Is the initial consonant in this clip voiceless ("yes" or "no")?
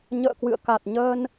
no